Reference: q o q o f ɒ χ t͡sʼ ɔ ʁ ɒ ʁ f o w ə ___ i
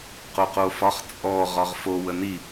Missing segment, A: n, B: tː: A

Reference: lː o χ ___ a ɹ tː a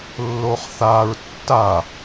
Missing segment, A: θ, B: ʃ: A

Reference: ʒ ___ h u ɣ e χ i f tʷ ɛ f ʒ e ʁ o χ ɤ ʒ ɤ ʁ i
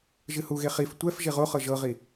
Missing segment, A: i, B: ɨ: B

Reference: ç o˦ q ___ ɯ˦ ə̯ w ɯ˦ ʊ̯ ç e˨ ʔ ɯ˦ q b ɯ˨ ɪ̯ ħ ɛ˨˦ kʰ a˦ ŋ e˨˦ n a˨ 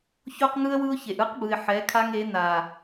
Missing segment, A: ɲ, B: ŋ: B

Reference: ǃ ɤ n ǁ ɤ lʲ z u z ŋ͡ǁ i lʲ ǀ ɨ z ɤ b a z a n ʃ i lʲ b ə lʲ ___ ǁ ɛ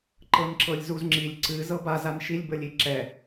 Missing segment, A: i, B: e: A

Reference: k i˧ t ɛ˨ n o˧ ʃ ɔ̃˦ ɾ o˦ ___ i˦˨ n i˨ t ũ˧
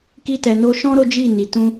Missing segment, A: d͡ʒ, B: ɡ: A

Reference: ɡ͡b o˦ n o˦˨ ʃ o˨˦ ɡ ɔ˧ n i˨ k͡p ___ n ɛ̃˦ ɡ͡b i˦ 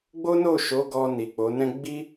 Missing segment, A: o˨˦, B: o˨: A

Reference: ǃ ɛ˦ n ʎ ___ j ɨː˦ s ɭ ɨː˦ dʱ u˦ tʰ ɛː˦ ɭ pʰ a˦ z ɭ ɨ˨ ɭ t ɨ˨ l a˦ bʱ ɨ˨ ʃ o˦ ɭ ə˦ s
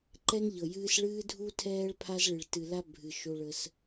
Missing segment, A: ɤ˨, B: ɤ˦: A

